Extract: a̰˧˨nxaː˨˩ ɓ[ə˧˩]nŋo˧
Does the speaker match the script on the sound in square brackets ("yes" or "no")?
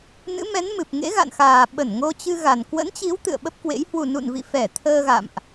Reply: yes